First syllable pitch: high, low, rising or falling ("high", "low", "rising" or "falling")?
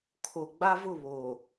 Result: low